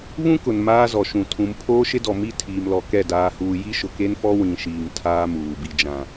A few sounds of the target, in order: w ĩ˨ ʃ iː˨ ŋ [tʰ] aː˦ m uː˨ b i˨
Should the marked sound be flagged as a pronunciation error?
no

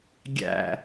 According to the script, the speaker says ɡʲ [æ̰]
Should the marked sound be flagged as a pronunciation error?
no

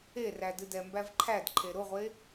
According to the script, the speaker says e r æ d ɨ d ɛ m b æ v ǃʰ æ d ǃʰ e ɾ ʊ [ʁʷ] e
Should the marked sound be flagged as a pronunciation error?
no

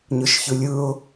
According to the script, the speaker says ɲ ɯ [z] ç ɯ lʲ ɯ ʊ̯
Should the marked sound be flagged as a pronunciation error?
yes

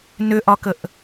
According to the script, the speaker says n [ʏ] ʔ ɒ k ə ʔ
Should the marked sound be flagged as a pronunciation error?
no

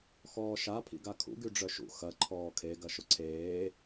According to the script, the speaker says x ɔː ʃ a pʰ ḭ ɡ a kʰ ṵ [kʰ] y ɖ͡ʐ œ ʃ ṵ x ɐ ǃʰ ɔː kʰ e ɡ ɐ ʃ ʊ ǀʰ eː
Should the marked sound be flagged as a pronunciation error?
yes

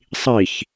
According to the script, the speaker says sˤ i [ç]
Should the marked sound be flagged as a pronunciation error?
no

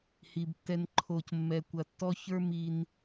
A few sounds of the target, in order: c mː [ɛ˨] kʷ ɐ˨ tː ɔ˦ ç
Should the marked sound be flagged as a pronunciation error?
no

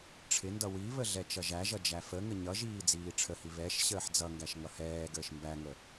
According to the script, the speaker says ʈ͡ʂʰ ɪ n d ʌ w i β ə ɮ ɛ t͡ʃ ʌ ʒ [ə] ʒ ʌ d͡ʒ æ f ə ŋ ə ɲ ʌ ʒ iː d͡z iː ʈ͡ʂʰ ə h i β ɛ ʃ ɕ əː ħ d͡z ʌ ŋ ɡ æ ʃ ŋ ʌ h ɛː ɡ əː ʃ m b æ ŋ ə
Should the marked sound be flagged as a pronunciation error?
yes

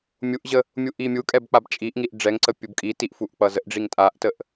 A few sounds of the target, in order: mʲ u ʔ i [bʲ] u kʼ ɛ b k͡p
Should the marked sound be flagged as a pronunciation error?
yes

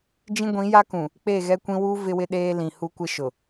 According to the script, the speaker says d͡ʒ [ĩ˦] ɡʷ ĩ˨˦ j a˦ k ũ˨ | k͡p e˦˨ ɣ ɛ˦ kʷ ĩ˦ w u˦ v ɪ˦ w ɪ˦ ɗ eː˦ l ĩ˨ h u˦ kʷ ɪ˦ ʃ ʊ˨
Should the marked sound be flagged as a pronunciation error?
no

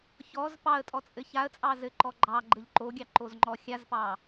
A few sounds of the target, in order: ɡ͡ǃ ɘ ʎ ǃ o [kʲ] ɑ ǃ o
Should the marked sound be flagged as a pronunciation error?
yes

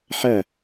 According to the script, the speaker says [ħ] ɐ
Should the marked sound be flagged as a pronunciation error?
no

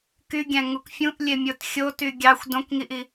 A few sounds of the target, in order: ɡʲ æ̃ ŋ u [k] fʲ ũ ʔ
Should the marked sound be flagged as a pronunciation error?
no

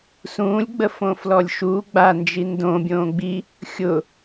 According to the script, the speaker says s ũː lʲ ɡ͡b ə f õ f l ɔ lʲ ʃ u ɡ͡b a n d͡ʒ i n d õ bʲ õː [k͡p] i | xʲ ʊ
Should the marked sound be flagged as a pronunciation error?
yes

